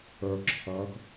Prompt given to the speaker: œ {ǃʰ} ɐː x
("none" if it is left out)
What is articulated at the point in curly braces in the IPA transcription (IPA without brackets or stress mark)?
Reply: ǁʰ